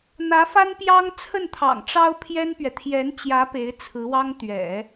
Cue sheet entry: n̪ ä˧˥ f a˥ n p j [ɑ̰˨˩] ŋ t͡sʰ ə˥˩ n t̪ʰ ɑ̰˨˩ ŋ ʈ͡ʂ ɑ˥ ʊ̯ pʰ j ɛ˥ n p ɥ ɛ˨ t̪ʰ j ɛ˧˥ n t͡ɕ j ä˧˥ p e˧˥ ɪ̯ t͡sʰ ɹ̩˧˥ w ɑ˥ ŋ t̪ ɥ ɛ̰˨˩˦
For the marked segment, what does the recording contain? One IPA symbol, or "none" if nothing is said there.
ɑ˥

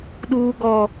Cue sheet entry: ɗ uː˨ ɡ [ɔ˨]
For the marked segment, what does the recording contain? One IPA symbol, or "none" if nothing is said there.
ɔ˨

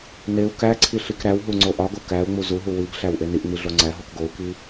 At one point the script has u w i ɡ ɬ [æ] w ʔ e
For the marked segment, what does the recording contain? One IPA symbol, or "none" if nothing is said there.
æ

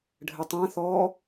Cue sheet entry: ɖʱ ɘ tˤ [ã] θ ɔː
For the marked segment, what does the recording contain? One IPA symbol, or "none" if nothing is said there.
ã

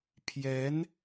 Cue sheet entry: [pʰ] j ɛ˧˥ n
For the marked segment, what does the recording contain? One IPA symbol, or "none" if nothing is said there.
pʰ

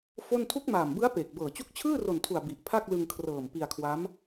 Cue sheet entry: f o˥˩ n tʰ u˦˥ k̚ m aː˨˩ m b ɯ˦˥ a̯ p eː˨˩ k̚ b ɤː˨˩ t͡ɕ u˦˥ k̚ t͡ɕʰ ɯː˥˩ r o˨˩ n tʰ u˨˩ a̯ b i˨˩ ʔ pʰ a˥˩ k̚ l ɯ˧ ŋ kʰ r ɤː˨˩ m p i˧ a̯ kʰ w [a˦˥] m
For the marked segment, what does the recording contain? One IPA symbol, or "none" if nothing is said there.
a˦˥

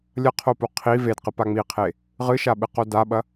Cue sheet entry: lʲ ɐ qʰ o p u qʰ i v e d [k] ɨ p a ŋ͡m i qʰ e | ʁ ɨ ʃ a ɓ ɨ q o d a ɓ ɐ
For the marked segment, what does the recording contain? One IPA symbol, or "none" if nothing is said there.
q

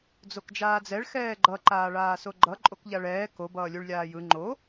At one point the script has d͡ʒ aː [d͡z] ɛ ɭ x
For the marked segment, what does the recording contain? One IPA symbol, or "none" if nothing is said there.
d͡z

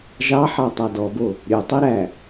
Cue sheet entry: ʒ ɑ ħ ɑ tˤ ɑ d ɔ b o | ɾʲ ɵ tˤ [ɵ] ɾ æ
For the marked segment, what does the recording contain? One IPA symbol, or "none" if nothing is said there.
œ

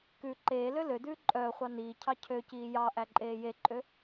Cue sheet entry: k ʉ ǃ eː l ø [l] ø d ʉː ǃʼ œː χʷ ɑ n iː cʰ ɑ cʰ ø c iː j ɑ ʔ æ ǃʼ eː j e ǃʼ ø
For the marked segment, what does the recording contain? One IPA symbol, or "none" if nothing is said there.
l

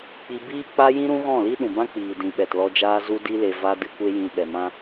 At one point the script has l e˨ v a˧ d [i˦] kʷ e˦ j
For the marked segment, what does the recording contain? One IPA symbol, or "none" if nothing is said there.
ɨ˦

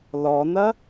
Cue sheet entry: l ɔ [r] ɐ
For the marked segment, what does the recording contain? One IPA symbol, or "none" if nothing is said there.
n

